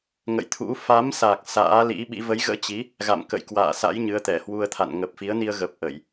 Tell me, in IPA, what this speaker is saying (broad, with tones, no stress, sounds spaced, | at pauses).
ŋ ə̰˧˨ j t̪ʰ ṵ˧˥ f a˨˦ m s a˨˩ k̚ s a̰ː˧˥ l ḭ˧˥ ɓ ḭ˧˥ v ə˨˦ j ɣ ə̰ː˧˥ t͡ɕ i˨˦ | ɣ a̰˧˨ m k ə̰˧˨ j k w a̰ː˧˨ s a̰˧˥ j ɲ ɨ˨˦ ə̯ t̪ ɛ˧˩ h w u˧ ə̯ t̪ʰ a̰˧˨ n ŋ ə˨˩ p̚ f i˨˦ ə̯ n i˧ ə̯ ɣ ə˨˩ p̚ ʔ ə˧˩˨ j